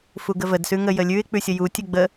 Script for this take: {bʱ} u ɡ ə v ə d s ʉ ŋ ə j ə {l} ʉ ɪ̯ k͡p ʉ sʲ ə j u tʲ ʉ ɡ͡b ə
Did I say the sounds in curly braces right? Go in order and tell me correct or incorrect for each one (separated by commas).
incorrect, incorrect